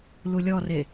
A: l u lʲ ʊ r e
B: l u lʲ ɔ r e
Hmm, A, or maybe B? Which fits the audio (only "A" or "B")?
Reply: B